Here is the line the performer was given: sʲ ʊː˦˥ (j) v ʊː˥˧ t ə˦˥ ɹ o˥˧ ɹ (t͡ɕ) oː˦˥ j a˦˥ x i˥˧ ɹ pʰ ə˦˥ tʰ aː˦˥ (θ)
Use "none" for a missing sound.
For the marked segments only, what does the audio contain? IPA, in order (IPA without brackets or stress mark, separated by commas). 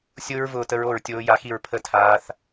ɹ, tʲ, θ